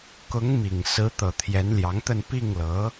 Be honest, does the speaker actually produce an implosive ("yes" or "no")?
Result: no